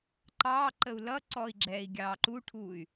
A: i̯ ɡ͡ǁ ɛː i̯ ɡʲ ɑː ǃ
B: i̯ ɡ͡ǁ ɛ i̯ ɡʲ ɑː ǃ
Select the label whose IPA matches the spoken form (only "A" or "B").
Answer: A